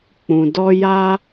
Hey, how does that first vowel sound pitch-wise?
low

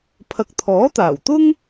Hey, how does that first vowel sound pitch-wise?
low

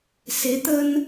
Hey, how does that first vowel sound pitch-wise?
rising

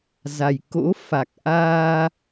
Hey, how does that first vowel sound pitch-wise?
low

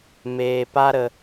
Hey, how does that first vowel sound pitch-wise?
low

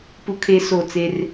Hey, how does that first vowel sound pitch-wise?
high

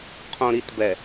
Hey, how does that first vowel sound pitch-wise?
low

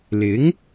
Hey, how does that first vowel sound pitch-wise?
rising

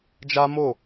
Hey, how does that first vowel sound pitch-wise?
high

